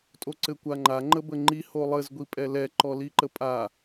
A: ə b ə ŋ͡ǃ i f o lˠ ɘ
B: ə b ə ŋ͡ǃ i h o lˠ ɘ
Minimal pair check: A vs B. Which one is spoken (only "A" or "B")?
B